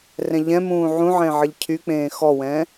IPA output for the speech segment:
r ɛ̃ ʎ ɛ̃ m ũː ʕ ũ ʕ ẽ ʕ ə ʎ cʰ y k͡p ẽː x ɔ w ɛ̃

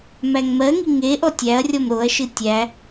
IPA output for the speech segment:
m æ ŋ m ɜ ŋ i ŋ e ʔ ɔ tʲ æ ɐ̯ rʲ ɔ m ɾ o ɐ̯ ʃ ɨ tʲ æ

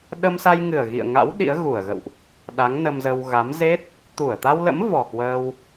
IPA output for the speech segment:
ɗ ə˧ m s a˧ j ŋ ɨ˨˩ ə̯ ɣ ḭ˧˨ ə̯ ŋ a̰˧˥ w ɗ ḭ˧˥ ə̯ ɣ u˧˩ ə̯ ɣ ə̰˧˨ w ʔ | ɗ a˨˦ ŋ n ə˧ m z ə˧ w ɣ a˨˦ m z e˦˥ t̚ | t̪ u˧˩ ə̯ t̪ a˧ w l ə̰˧˥ m v ɔ˨˩ k w əː˧ w

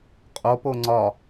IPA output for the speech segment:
qʼ o p o ŋ͡ǀ ɒ

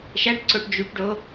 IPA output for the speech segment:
ʃ æ ʈ ǀ o ʈ d͡ʒ y ʈ ɖ o

